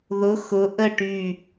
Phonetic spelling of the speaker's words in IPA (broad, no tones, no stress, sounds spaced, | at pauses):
ð ʊ x ʊ ʔ ə ʈ y